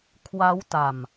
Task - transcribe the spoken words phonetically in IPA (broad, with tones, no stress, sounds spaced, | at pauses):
kʰ w a˦˥ w t a˨˩ m